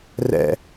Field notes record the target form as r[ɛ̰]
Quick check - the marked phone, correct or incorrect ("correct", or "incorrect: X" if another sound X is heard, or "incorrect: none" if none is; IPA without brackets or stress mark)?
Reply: correct